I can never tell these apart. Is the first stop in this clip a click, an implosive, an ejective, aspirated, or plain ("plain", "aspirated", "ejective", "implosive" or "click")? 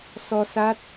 plain